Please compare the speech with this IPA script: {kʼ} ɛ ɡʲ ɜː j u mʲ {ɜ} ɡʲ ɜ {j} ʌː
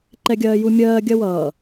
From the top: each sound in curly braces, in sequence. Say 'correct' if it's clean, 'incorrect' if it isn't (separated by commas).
incorrect, incorrect, incorrect